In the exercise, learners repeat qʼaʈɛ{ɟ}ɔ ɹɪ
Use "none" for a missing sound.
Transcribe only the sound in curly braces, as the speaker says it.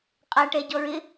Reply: ɟ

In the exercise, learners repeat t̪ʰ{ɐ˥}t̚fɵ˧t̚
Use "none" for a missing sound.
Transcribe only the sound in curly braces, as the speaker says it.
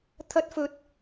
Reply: ɐ˥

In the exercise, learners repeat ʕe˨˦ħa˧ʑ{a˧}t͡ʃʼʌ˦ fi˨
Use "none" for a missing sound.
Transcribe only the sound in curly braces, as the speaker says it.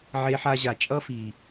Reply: a˨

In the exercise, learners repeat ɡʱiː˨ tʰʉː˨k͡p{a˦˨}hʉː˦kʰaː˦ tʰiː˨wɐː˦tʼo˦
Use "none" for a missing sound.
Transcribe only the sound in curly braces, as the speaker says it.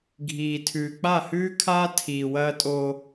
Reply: a˦˨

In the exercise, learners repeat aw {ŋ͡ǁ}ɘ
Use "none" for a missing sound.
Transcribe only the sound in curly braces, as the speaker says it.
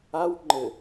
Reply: ŋ͡ǃ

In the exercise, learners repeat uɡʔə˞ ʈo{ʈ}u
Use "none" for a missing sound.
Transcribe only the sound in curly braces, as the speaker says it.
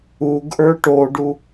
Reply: ɖ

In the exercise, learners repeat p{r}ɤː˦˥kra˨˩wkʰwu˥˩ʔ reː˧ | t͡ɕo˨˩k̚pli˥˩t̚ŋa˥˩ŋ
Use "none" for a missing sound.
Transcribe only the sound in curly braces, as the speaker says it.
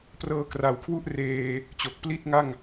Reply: r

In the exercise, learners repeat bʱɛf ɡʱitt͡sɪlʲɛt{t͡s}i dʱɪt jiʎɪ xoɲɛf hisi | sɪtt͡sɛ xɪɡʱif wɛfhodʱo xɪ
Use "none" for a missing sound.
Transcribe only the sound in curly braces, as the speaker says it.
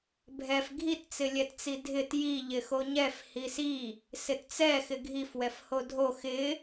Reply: t͡s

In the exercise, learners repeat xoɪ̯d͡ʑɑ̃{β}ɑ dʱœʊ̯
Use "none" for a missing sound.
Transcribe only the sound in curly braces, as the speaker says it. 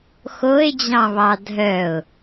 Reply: β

